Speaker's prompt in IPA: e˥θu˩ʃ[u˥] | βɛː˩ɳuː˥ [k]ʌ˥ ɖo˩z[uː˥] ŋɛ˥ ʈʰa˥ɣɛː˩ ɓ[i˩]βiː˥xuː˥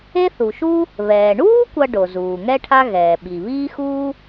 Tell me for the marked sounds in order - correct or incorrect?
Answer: correct, incorrect, incorrect, correct

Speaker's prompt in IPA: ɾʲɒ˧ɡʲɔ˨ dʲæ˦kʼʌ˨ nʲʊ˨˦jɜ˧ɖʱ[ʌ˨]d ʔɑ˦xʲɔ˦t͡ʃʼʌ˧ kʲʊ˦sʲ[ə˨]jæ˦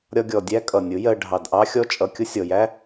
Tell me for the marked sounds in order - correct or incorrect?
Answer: incorrect, incorrect

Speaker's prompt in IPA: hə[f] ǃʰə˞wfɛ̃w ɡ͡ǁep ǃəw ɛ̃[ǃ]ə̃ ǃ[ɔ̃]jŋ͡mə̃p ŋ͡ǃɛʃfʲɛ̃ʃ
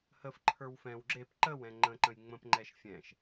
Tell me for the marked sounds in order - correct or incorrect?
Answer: correct, incorrect, incorrect

